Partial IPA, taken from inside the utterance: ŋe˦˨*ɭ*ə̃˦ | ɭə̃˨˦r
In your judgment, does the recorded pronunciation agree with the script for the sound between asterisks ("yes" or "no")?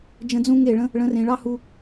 yes